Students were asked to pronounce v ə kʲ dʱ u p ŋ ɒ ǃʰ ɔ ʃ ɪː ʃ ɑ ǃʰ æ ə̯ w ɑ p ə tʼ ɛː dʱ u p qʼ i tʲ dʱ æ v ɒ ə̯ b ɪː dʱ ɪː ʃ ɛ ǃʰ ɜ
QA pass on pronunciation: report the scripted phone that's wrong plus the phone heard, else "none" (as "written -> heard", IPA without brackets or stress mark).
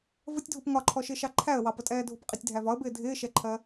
kʲ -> tʲ